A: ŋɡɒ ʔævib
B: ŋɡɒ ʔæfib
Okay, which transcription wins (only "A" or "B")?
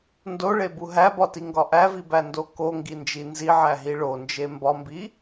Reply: A